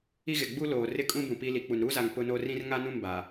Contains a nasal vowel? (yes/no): yes